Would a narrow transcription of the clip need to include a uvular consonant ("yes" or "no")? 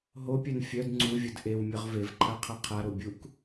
yes